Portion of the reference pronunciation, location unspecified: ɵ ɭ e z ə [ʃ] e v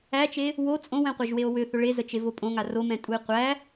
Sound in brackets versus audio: incorrect: t͡ʃ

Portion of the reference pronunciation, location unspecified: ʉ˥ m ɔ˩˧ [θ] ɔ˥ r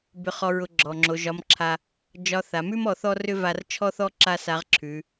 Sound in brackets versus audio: correct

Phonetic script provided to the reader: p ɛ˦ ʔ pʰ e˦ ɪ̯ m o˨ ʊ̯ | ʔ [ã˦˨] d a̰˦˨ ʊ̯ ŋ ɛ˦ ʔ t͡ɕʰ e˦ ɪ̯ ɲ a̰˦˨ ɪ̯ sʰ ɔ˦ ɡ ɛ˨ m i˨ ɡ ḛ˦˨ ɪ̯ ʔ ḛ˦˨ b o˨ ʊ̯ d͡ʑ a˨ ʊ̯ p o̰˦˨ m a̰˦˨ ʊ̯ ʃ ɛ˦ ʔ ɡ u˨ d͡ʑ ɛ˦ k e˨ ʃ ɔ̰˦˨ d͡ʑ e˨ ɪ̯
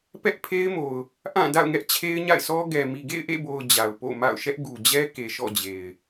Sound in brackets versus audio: correct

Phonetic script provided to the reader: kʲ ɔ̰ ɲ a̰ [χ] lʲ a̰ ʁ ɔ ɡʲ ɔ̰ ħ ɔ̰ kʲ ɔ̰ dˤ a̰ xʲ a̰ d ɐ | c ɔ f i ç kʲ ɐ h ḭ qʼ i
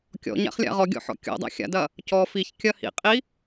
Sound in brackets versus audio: correct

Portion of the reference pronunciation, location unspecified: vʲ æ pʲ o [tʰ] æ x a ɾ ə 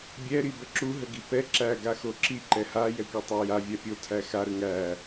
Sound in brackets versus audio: correct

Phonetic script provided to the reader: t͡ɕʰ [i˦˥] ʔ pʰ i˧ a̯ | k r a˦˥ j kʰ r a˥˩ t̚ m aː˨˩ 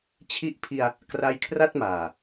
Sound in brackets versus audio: correct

